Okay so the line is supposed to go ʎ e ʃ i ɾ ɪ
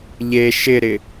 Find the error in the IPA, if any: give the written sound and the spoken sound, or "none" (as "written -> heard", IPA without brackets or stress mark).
i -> ɪ